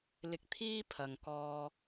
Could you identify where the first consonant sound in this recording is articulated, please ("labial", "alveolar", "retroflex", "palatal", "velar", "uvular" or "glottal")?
alveolar